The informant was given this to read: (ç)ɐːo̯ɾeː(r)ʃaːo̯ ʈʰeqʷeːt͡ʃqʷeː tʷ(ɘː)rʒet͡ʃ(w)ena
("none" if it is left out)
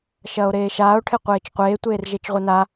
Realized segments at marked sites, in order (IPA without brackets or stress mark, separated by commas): ʃ, none, eː, ʁʷ